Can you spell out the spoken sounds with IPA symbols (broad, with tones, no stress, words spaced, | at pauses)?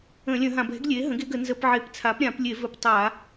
ə̃˧˩˧lʲə̃˧˩˧ɦã˧˩˧b ɛ̤˩˥ɡlʲe˩˥ ɦə̃˩˥ɡe˩˥ ɡə˧˩˧nzə˧˩˧pʕe˧˩˧p t͡sʰa˩˥pɾʲã˧˩˧plʲe˧˩˧vɵ˧˩˧p tˤa˧˩˧